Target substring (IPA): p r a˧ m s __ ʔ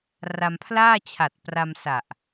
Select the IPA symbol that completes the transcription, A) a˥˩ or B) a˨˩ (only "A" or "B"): B